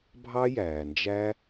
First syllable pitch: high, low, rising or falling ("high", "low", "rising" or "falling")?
high